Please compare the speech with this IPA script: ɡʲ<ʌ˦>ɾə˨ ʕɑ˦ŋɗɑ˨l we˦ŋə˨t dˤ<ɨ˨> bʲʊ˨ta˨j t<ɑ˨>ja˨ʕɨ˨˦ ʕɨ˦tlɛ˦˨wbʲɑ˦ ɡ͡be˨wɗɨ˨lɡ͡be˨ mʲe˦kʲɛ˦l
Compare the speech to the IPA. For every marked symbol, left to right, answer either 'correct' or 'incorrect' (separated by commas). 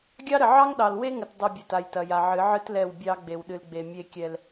incorrect, correct, incorrect